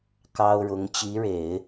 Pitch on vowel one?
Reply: high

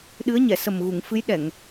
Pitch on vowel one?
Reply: rising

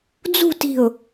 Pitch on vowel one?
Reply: falling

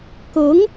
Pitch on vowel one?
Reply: rising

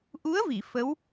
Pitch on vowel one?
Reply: rising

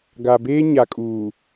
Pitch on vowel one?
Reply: low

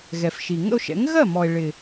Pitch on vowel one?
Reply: low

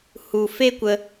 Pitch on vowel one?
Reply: low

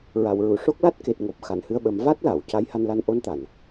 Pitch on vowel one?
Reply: low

